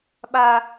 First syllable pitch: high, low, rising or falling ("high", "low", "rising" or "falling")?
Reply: high